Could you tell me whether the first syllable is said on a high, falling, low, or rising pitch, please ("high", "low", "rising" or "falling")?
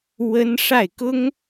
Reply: high